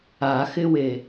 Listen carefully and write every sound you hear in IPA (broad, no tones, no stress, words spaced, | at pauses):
axɪwe